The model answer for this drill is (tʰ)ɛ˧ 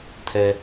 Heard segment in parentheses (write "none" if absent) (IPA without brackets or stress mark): tʰ